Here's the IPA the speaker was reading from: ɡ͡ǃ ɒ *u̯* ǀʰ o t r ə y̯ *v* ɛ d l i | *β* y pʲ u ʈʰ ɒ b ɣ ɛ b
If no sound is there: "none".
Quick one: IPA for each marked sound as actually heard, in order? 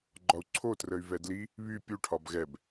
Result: u̯, v, β

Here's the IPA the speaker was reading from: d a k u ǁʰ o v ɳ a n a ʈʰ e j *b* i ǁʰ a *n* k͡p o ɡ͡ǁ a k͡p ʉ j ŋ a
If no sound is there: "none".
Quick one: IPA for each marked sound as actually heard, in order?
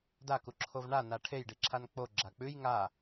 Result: ɖ, n

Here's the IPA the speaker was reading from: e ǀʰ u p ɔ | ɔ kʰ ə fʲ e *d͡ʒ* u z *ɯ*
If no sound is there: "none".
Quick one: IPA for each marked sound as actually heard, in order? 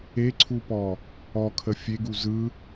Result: ɡ, ɯ

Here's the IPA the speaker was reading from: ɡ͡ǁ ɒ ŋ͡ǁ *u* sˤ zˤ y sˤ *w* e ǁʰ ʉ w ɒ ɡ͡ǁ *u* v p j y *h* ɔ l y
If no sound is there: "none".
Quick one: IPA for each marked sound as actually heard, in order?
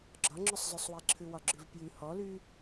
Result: ʉ, w, ʉ, h

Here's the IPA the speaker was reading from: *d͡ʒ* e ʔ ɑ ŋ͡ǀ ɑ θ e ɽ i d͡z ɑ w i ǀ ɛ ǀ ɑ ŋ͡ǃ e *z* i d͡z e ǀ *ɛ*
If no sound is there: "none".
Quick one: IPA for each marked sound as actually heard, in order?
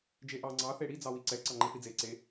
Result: d͡ʒ, θ, e

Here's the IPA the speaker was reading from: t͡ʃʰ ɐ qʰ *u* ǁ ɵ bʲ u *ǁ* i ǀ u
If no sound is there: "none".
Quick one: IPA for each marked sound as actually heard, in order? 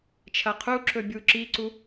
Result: u, ǁ

